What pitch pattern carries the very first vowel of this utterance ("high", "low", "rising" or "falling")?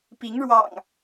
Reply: rising